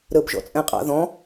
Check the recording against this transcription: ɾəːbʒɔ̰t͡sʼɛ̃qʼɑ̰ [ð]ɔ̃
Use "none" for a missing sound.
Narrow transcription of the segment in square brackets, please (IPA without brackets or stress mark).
ð